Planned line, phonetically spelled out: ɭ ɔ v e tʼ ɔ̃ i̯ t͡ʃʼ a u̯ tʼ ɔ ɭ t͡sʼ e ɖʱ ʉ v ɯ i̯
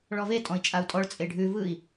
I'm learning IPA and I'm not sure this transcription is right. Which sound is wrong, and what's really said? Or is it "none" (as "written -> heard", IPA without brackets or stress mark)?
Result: none